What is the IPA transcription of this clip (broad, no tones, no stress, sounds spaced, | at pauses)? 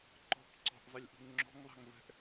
ǃ ɔ̤ p ǀ ɔ̤ ʔ zˤ ə lʲ ʔ ṳ ŋ ŋ͡ǁ ɔ̤ ŋ ðˤ a̤ ŋ v ɛ̤ ʔ